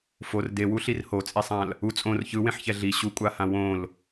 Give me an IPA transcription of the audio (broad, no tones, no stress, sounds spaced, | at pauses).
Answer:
f o r d e w u ɬ i r h o t͡sʼ i sˤ ã l | u t͡sʼ õ r ç ɯ w ẽ ħ ç ɛ ɮ i ɕ u kʷʼ a h ã w õ l